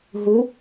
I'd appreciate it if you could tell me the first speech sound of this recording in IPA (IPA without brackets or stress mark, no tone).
ɦ